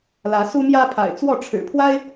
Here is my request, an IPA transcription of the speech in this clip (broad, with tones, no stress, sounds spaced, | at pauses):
l ä˨˦ s u˦ m j ä˦ pʰ a̰˨˩ ɪ̯ t͡s w ɔ˥˨ ʈ͡ʂʰ ɻ̩˨˩ pʰ w a˦ ɪ̯